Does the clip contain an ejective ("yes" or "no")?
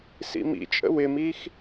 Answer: yes